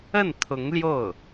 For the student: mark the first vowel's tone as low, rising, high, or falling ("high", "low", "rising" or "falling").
falling